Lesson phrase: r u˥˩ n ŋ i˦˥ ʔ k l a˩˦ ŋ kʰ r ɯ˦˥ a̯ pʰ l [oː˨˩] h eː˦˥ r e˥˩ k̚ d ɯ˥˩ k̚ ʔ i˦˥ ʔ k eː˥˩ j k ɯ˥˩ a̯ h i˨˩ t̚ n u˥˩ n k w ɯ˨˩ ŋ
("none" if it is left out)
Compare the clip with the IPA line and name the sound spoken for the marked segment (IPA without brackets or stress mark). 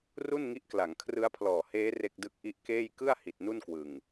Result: ɔː˨˩